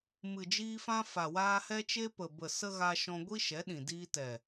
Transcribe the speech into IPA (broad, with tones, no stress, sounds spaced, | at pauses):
m ɨ˨ d͡ʒ iː˧ f ã˧ f a˨ w aː˧ h ɛ˦ t͡ʃ e˦ p ə˨ b ə˨ s ə˦ ɣ a˧ ʃ ɔ̃˧ ɡʷ i˦ ʃ ɛ˨˦ ɗ ĩ˨ d iː˧ t ɛ˨